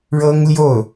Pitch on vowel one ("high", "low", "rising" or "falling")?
high